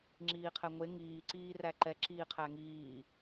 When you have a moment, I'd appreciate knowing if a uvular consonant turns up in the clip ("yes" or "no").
yes